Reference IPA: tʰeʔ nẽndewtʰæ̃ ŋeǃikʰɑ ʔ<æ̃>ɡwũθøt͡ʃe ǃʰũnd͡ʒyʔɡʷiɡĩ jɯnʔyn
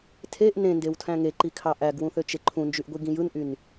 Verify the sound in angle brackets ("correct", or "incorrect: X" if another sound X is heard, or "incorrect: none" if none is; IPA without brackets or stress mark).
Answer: incorrect: æ